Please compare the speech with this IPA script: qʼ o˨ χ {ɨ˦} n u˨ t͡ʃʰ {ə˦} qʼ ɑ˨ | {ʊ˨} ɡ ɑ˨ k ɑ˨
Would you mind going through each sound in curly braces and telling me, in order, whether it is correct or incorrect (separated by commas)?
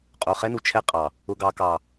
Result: incorrect, incorrect, correct